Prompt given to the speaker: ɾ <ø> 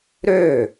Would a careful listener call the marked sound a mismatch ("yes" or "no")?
no